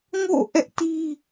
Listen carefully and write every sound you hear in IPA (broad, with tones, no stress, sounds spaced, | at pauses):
ŋ o̰˦˨ ʔ ɛ˦ ʔ t i˦